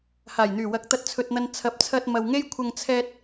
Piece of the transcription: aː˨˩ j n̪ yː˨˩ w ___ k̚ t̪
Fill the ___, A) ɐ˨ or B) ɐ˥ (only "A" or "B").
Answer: A